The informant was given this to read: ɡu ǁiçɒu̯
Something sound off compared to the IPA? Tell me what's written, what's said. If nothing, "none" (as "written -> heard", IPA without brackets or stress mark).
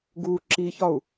none